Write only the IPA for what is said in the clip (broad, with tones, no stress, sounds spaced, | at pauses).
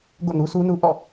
ɡ o̰˦˨ n u˦ sʰ u˦ n u˦ ʔ ɔ̰˦˨